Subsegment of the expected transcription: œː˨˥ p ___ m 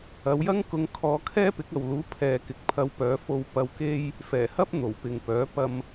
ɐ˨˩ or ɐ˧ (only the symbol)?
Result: ɐ˧